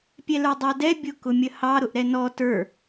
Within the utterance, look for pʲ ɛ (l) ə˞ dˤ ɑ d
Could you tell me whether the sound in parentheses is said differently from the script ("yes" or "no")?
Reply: no